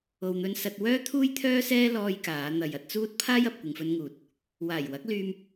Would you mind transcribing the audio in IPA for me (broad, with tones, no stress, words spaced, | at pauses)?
o˨wn̪ɵ˧nsɐ˧t̚ wœː˥t̪ʰuː˥jt̪ʰœː˥sɛː˥ lɔː˧j kaː˨˧ n̪ɐ˨jɐ˧t̚t͡suː˥t̚ pʰaː˥jɐ˨p̚ kʷɪ˨ŋfɵ˧nŋuː˨t̚ | waː˨˩jwɐ˨˥k̚lyː˧m